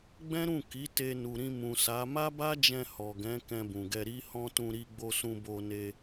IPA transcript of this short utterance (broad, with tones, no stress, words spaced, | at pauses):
ɡ͡bɛ̃˦ɾũ˦˨ ki˨˦ te˧nu˨ɾĩ˧ mũ˨sa˨˦ ma˦ba˦d͡ʒɛ̃˧ hɔ˨ɡɛ̃˨˦ kɛ̃˧bũ˨ɡɛ˧ ɾi˦hɔ̃˦ tũ˧ɾi˧ɡ͡bo˧sũ˧ bo˧ne˧